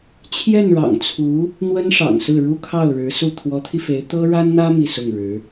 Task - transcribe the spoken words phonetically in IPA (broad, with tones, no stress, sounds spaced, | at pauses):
t͡ɕʰ j ɛ˥˩ n ɻ ɑ̰˨˩ ŋ t͡sʰ u˧˥ | n̪ w ə˥ n ʂ ɑ̰˨˩ ŋ s ɹ̩˥˩ ɻ u˥ kʰ ɑ˥˩ ʊ̯ ɻ ɻ̩˧˥ s u˥˩ t̪ʰ w ɔ˧˥ t̪ʰ i˧ f e˧˥ ɪ̯ t̪ ɤ˥ ɻ a˥ n n̪ ä˥ m i˥˧ s ʊ˥˩ ŋ ɻ ɻ̩˧˥